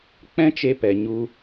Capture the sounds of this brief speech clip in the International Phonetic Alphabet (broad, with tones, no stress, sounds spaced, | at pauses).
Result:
k͡p ɛ̃˦ t͡ʃ e˧ p ɛ˨ ɲ u˧